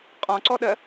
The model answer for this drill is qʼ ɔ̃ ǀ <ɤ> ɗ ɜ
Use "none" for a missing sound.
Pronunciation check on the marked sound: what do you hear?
ɔ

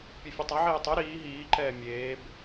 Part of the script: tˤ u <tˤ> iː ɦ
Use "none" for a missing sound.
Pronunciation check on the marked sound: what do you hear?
ɾ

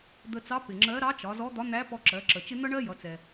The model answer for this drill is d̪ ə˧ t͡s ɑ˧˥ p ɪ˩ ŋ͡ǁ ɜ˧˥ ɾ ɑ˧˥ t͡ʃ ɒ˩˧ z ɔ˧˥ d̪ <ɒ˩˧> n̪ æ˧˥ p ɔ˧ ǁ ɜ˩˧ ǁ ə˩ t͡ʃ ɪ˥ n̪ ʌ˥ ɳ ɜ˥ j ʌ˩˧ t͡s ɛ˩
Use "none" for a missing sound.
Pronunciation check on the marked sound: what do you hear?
ɒ˧˥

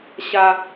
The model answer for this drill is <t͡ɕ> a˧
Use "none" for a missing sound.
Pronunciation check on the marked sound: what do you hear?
ɕ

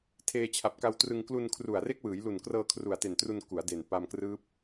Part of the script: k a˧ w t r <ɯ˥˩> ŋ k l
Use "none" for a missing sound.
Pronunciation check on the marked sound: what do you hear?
ɯ˧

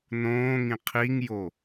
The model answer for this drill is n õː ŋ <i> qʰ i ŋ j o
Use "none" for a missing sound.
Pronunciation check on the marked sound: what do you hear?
ĩ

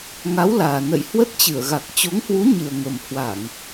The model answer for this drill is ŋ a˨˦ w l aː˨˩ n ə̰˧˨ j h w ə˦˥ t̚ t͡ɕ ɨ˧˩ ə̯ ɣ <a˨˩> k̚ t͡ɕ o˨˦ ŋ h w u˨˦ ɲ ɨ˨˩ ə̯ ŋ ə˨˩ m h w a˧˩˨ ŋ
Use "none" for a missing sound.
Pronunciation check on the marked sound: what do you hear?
a˨˩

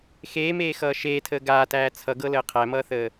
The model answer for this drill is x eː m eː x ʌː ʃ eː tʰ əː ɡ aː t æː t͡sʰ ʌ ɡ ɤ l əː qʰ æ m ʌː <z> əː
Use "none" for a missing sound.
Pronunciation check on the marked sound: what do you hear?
θ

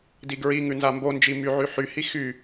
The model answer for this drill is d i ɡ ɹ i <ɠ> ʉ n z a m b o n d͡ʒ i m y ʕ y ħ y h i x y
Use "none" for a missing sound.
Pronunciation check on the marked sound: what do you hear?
ŋ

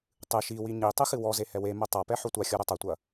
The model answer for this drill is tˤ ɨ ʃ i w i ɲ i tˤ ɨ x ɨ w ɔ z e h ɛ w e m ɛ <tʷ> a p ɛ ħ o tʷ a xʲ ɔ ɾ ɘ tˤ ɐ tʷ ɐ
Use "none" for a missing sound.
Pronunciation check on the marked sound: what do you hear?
tˤ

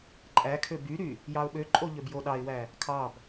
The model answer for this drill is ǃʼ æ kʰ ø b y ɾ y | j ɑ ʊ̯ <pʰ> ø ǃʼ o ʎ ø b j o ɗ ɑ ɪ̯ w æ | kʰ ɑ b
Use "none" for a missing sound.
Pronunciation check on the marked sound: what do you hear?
ɓ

